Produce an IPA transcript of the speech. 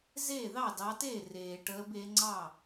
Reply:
zeː˥˩ðɑ˥˩dɑ˨˦teː˥˩ reː˩ʈəː˨˦be˨˦ ŋ͡ǀɑ˥˩

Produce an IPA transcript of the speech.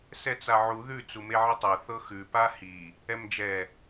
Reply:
sɛt͡saʕu ðʉ t͡sumeʕɪtˤɤ θɤxʉ pahi | ɛmd͡ʒɛ

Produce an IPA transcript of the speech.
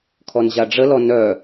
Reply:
kʰɔnʑaɖ͡ʐəlɔ nœ

